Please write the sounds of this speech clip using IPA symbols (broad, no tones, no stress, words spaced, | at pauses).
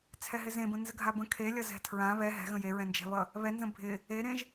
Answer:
t͡sʰɛɦɪzẽbə̃ nzəɡʱabə̃ kʰelʲʌ zɛ̤tʰɹã βɛ ɦɛ̤ɣə̃ jeɹɛ̃nd͡ʒɛ̤βʌ | βɛnzə̃ bʱɪ | eɾẽʒ